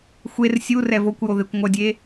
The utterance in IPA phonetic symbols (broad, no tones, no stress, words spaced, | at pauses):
xʷer sʲu rɛvokʷjo ðekʷŋʷʌdʲe